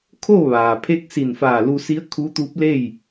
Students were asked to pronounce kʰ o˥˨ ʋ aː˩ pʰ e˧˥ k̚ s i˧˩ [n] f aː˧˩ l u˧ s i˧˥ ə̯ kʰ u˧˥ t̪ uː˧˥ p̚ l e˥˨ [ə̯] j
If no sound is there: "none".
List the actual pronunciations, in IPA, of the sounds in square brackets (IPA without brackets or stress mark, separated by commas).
n, none